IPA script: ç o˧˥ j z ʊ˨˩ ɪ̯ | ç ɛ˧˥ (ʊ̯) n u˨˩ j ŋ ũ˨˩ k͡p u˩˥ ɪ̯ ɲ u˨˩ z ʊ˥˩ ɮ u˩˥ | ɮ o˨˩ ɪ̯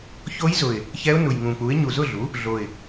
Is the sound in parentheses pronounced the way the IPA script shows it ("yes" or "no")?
yes